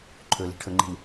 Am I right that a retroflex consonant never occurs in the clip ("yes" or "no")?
no